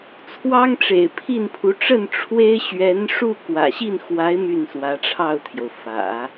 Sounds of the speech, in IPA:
t͡sʰwɑ˥ŋʈ͡ʂḛ˨˩ɪ̯ pʰi˥˩npʰu˧˥ ʈ͡ʂə˥˩n ʈ͡ʂʰwe˥ɪ̯ ɕɥɛ˧˥nʂu˥˩ kwä̰˨˩ɕi˥˩nxwa˧˥ɪ̯ my˥˩nswä˧˥ʈ͡ʂʰɑ˥˩ʊ̯t̪ʰjo˩ʊ̯ fä̰˨˩˦

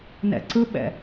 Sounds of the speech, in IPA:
nɛ̰ǀɯɓɛ̰

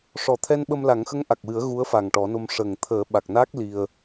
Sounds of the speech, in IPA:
ʂɔ˨˩t̪ʰɛ˧nɓə˧m la˨˩˦ŋxə˧˥ŋʔa˨˩k̚wɨ˨˩˦ə̯ ɣu˧˥ə̯fa˨˩ŋʈɔ˨˩˦no˧m ʂə˨˩ŋt̪ʰəː˨˩˦ ɓa˨˩k̚naː˦˥k̚ li˧ə̯

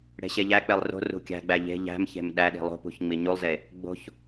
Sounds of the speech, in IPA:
ɽe̤ɕeʎæk͡pelˠ ro̤ rṳkʲæ̤ɡ͡bæ ʎe̤ ʎæ̤mçe̤m ɗæɗi̤ lˠo̤pṳç ŋ͡miɲulˠze | ɡ͡bo̤ç

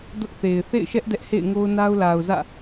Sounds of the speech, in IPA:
dʊ˦ʔθe˨ɪ̯ θḛ˦˨ɪ̯ʃɛ˦ʔ dɛ˦ʔhḛ˦˨ɪ̯ŋo˦ʊ̯ na˦ʊ̯la˨ʊ̯zä̰˦˨

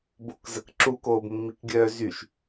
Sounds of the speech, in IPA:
bokzəkǁu koːbmːikɡʲœːzyʃ

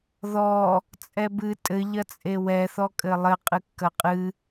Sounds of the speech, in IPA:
ðɔ | t͡sʼɛbɨ tʼɘ ʎɐt͡sʼewɛ θɔkʼɘlˠɘ qʼɨkːɐqʼɨ

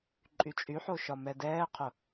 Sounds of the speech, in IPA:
ǃʼyt͡ʃʼyħo ʃɒmɛdɛːqʰʊ

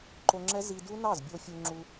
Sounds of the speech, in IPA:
ǃo˧ŋ͡ǁɛ˦˥ zi˧du˦˥nɑ˥˩zbʲo˧ fʲu˧ŋ͡ǁu˧

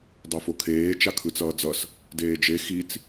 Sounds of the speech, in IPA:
dˤofokʰeː t͡ʃakʰɯt͡sʌːd͡zʌs | deːd͡ʒe xit͡s

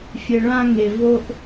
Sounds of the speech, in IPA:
fʲɘ˨ɭã˦ŋe˨ vo˦ʔ

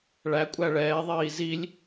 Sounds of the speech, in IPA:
ɭæ kʷʼæɭɛː ðˤiːzilʲ

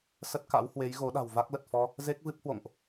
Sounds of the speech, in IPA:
sə˦˥t̚ka̰˧˥whwe˨˦jɣo˨˦ ɗa̤˨˩wva˦˥k̚lə˨˩t̚ fɔ˧ | ze˦˥k̚vɨ˦˥p̚hwo̰˧˨ŋʔ

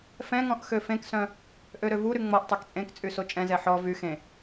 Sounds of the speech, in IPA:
fɛ̃ŋɔ̃ʔ xøfẽksœ̃ | ʔøɾøvuɾy ŋ͡mɔʔtˤek t͡sʼẽkt͡sʼy sot͡ʃʼɛ̃zɛ ħɔ vy xẽ

